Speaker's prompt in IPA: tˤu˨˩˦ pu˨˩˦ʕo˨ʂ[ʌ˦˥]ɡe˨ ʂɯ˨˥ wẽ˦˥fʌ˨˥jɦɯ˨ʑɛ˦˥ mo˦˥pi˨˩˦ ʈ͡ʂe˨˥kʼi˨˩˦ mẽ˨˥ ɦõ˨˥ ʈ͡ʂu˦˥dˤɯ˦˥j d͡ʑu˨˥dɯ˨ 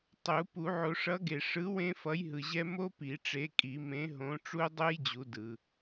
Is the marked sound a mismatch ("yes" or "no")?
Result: yes